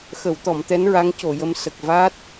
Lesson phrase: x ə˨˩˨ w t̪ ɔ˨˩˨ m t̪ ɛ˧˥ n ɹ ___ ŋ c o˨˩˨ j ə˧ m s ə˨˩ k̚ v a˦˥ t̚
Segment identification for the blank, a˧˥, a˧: a˧˥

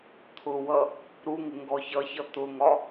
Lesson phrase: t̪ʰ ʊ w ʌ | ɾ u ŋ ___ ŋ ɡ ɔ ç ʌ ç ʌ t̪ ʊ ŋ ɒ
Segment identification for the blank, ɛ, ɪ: ɪ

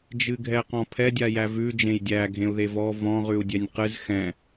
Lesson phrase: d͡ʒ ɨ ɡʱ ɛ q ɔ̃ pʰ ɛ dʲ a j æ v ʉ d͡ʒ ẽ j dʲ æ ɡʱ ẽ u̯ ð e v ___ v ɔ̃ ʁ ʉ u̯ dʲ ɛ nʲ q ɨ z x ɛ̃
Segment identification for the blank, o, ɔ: ɔ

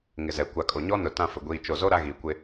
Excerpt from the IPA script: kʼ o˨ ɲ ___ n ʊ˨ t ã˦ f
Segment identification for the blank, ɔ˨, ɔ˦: ɔ˦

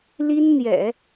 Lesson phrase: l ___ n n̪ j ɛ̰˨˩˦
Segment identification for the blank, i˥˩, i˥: i˥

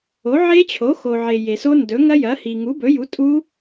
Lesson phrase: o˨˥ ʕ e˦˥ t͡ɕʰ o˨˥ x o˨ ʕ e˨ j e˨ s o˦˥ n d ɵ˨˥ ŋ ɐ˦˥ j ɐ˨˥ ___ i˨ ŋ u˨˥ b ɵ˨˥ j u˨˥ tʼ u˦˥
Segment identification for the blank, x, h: h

